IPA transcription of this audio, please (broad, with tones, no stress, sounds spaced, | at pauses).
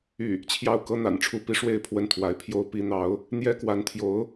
y˥˩ | t͡ɕʰ j ɑ˥˩ ʊ̯ k ɤ˥ n̪ a̰˨˩ n ʈ͡ʂʰ u˥˩ p i˧˥ ʂ w e˥˧ ɪ̯ pʰ w ə˥˩ n t̪ʰ w a˧˥ ɪ̯ pʰ j o˥ ʊ̯ p i˧˥ n̪ ɑ˧˥ ʊ̯ | n̪ j ɛ˥ k w a˧˥ n t̪ʰ j o˧˥ ʊ̯